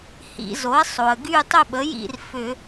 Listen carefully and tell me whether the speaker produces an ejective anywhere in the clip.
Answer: no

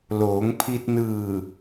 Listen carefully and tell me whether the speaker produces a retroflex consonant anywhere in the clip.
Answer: no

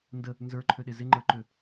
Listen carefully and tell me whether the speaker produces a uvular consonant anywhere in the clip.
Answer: no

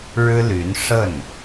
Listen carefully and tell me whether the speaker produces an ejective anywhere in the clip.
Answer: no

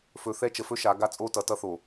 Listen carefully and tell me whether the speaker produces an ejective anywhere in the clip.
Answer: yes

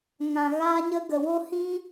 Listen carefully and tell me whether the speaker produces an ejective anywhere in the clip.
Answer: no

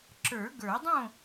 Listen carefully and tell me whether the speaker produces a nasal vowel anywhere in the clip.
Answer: yes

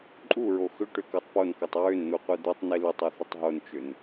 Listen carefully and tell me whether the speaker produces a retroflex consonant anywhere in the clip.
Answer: yes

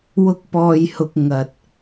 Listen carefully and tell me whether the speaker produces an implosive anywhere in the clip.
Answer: no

